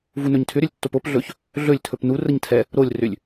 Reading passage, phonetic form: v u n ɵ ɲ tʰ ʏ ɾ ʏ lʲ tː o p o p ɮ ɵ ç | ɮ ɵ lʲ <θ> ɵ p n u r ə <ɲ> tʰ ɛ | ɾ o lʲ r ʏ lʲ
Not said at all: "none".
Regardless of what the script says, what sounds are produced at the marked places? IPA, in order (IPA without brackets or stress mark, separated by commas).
tʰ, ɲ